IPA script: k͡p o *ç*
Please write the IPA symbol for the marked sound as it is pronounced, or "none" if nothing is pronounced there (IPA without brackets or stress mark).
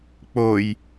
j